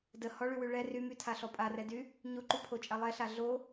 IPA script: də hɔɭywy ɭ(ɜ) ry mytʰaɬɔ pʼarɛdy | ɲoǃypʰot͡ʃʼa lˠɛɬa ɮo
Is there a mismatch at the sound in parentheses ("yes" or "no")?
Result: yes